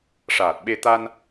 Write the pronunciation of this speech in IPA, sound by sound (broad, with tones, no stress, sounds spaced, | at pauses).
ʂ aː˨˩ t̚ ɓ e˧ t̪ a˧ n